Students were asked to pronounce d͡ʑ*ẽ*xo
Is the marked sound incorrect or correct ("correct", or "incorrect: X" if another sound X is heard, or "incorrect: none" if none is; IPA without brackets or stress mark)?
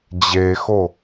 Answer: incorrect: e